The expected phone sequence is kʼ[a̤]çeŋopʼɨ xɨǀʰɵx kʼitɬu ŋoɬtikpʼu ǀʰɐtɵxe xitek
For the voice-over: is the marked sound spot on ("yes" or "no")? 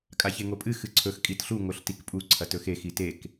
no